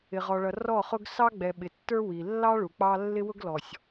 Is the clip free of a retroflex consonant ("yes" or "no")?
no